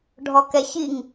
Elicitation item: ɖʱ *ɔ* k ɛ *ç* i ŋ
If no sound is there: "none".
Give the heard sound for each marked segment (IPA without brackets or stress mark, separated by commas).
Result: ɔ, ç